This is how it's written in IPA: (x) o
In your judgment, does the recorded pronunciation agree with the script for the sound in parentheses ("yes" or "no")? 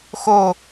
yes